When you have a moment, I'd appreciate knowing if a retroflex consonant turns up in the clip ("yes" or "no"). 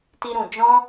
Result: no